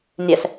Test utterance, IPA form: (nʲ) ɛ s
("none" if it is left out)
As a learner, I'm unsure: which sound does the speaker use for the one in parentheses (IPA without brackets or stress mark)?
nʲ